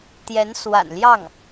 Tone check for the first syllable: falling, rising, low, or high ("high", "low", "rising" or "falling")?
rising